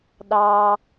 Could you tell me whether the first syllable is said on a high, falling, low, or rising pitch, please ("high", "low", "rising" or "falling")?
low